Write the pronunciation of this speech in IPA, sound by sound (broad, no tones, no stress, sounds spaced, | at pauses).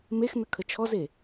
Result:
m e x n ə kʰ ə t͡ʃʰ ɔ z e